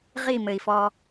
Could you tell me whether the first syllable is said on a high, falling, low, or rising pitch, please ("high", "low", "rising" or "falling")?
falling